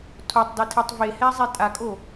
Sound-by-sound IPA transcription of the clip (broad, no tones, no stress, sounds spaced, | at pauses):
tʰ o tˤ d ɘ tʰ e tˤ v e h ɛ zˤ e tʼ a kʼ o